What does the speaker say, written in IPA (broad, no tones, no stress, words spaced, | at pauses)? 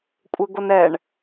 kʷʼɘɡonɛɳ